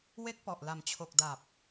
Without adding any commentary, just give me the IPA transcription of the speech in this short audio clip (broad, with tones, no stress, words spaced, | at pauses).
we˦˥k̚ pɔ˨˩ʔla˨˩m t͡ɕʰo˨˩k̚da˨˩p̚